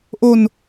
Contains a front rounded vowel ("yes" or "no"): no